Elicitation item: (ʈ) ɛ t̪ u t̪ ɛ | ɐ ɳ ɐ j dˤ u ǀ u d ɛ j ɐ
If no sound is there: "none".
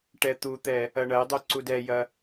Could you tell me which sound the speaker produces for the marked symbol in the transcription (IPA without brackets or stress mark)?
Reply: ʈ